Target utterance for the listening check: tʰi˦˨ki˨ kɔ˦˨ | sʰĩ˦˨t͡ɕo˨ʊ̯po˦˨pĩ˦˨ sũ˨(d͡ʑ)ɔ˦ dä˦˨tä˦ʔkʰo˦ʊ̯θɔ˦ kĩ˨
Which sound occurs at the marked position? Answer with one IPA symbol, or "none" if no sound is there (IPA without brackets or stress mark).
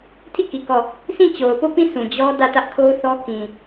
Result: d͡ʑ